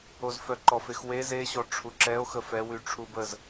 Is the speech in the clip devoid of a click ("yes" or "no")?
no